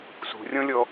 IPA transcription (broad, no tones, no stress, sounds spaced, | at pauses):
s ṳ rʲ ɔ̃ lʲ ɔ